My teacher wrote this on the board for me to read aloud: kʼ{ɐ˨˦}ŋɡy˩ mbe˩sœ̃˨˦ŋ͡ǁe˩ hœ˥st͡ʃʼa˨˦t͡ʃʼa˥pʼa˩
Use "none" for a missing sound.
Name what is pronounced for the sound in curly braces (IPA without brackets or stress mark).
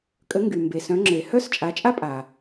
ə˨˦